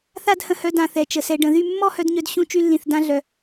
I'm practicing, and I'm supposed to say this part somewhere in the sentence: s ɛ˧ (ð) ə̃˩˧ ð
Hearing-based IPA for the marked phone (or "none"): ɖ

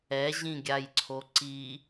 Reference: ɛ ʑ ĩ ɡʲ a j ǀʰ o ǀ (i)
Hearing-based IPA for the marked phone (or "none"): i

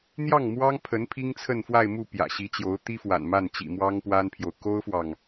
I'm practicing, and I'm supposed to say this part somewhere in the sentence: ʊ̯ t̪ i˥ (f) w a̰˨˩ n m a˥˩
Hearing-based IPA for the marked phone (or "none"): f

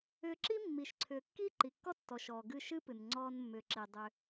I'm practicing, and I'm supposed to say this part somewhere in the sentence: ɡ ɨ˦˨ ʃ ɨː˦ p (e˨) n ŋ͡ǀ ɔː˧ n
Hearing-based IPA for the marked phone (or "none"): ɨ˨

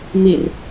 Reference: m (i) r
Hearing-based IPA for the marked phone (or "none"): i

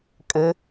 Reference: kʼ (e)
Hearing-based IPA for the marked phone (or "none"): ɘ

